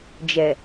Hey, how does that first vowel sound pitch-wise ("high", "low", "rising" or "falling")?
low